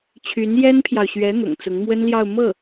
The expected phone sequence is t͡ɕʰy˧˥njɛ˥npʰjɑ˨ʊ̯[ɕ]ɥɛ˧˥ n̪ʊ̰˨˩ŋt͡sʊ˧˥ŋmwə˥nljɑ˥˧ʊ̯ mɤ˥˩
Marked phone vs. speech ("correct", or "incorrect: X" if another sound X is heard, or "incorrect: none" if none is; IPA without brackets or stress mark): correct